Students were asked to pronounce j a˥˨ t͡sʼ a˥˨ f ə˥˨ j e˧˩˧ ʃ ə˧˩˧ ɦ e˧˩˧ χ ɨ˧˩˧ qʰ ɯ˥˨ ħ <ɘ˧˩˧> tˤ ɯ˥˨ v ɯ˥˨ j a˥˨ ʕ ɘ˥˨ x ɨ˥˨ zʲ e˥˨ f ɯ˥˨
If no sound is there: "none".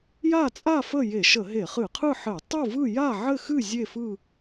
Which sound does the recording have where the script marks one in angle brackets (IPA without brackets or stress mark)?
ɘ˧˩˧